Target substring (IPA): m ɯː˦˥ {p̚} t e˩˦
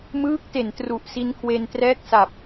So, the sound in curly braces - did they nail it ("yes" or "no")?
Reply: no